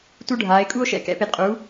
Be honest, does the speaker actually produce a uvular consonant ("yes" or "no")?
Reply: yes